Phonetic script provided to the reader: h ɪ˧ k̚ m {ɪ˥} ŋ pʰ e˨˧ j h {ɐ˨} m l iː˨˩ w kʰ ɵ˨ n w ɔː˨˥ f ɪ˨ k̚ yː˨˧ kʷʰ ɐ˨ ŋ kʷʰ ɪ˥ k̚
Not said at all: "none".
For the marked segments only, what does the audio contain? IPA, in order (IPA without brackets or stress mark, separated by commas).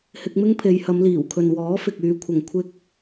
ɪ˥, ɐ˨˧